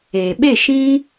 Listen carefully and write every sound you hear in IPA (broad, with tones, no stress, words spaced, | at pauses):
eː˨ɓe˦˨ʃĩ˦